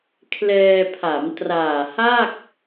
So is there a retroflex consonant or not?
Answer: no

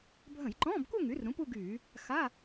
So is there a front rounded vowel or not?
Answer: yes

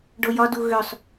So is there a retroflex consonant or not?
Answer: yes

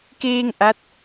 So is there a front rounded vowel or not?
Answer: no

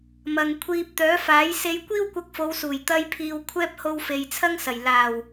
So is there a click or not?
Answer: no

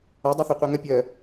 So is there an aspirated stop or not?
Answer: no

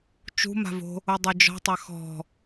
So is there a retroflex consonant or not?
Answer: no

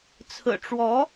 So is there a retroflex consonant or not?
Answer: yes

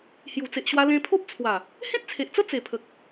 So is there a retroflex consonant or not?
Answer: no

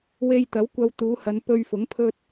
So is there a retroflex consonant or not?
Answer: no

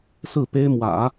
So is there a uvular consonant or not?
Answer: no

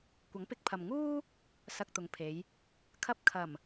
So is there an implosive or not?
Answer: no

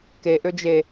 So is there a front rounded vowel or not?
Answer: yes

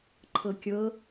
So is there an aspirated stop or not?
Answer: yes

